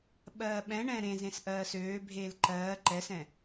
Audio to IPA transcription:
ɓ ɜː ɓ ɛ̃ ɳ ɛ̃ ɾ ẽ z ẽ s ʔ ɜː s øː bʱ eː l ǃ ɜː ǃ ɛ s ɛ̃

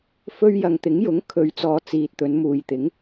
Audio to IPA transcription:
f ɵ˧ ɥ j ɐ˨ ŋ t̪ ɪ˨˥ ŋ j ʊ˨˥ ŋ kʰ ɵ˨˧ ɥ t͡s ɔː˨˧ t͡s iː˨ t̚ t̪ ɵ˨˧ n m uː˨ j t̪ ɪ˨˥ ŋ

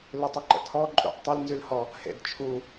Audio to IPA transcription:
l ʏ tˤ ʏ ǃ ə̰ tʰ ɔ ǃʼ ṵ ʔ tˤ ʏ l n z y l h ɔ | h ḛ d t͡ʃʰ u

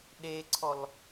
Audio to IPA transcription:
ɗ e ǀʰ ɔ l

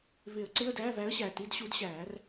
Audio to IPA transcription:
v ɪ˨˩˦ ə̯ ǀ ɪ˧˥˧ ə̯ d æː˧˥˧ v æ˧˥ ə̯ ɕ æ˨˩ t i˧˥˧ d ɕ u˧˥ d ɕ æː˨˩˦ r

